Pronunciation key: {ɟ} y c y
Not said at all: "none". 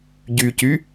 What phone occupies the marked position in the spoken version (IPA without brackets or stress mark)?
ɟ